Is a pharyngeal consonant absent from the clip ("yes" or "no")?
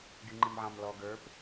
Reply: no